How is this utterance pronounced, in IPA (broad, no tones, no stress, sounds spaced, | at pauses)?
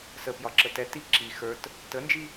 s ə p j ɒ ǁ ə t ɛ t i ǁ i x ə˞ t | t ə n d͡ʒ i